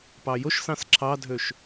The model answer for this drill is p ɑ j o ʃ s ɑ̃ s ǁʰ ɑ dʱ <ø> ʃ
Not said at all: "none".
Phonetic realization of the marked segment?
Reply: ø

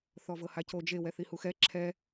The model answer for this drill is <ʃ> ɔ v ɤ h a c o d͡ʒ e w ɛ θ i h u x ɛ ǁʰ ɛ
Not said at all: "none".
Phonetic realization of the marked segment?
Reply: θ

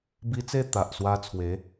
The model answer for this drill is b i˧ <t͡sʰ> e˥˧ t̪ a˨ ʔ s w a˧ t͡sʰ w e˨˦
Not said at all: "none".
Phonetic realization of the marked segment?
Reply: t͡s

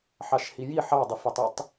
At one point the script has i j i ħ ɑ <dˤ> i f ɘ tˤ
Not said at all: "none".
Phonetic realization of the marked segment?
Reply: dˤ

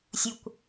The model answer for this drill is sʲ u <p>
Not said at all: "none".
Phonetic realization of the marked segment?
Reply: kʷ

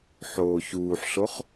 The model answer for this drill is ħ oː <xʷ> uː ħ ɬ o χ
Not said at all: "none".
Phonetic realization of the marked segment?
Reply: ç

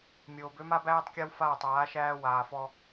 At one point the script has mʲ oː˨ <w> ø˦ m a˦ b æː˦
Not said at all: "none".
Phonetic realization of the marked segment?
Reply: b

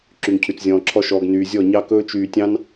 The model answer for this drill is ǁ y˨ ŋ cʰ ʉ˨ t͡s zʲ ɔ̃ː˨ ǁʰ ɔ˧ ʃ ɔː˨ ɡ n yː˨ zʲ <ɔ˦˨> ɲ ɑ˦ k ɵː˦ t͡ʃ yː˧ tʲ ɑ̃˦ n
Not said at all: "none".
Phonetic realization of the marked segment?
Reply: ɔ˦˨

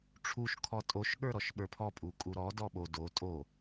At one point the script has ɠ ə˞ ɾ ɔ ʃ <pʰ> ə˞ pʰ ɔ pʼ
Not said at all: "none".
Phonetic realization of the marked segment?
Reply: ɓ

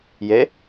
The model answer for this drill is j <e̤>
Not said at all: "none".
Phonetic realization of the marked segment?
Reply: e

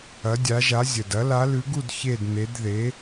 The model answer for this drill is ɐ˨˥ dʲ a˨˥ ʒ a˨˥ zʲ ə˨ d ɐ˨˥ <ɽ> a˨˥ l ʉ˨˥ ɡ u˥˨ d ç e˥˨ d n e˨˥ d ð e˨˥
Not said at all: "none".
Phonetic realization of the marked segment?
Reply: l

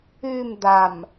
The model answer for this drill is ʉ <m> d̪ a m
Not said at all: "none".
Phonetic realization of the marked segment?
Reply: m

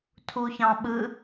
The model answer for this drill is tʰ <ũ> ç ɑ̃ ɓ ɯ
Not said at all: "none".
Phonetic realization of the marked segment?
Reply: u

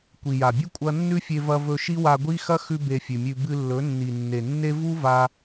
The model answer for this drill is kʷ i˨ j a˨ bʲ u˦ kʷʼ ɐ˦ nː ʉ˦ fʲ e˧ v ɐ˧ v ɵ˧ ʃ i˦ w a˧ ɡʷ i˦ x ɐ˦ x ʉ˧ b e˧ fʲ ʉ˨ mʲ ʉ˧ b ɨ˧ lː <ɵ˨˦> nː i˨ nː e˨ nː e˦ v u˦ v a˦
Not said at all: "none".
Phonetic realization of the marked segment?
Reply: ɵ˨˦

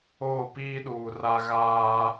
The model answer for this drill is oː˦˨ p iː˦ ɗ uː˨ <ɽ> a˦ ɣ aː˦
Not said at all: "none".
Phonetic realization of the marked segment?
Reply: r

